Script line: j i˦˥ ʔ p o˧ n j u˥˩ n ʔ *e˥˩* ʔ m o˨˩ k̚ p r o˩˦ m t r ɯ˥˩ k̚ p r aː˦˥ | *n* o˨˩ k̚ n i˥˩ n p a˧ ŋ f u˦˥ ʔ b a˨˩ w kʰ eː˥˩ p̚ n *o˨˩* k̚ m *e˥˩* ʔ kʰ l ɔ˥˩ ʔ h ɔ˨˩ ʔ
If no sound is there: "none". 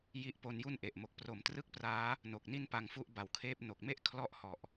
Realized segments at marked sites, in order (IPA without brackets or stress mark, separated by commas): e˨˩, n, o˨˩, e˥˩